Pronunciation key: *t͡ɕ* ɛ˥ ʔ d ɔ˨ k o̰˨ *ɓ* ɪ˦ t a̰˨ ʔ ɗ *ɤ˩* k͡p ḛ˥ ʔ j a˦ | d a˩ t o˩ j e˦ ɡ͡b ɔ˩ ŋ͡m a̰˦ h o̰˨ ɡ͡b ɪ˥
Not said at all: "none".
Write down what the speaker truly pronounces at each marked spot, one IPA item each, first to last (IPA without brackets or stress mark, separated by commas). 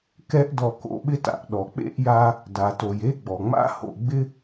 k, ɓ, ɔ˩